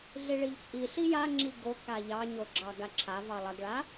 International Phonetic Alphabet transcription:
ɮ i ɭ i ʎ t͡sʼ i ɬ i j a ŋ͡ǁ i ɡ o k a ʎ ɑ ɲ o ɡ͡ǁ ɑ ɡ a ǁʰ a v ɑ lˠ ɐ ɡ ɭ a

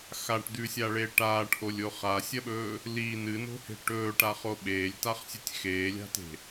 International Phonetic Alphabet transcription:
x a ʈ d̪ ʉ sʲ a ɭ e ʈ aː ʈ ʔ o lʲ o χ a sʲ ɐ ɓ ɵː | l i n ɨ n o̤ h e̤ ʈ ɵː ʈ a χ o ɓ eː lʲ t a χ sʲ ʉ tʲ x eː lʲ a̤ t e̤

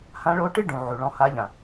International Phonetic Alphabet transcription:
h ã˧˥ ɭ o˧˥ ʈ ɨ˥ ɖ ũ˩˧ ʕ u˩ ɭ ɔ̃˧ h a˧˥ ʎ ã˩

